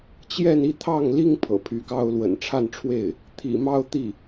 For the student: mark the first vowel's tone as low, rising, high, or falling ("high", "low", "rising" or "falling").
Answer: falling